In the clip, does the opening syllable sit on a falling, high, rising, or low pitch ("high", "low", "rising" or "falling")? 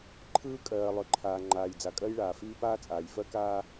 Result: high